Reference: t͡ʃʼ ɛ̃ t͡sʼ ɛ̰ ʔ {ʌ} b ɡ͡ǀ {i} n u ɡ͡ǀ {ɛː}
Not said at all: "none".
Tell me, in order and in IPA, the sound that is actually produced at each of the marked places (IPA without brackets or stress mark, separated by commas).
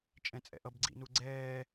ʌ, ḭ, ɛː